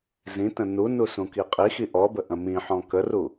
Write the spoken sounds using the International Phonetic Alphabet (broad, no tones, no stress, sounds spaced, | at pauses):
z ĩ t ə̃ n u n u s ũ k i qʼ i x i ʔ ɔ b ə ʔ ə̃ m ĩ ħ ɔ̃ k ə r u